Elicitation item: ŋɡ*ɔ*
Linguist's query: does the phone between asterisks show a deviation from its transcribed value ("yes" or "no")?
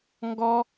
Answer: no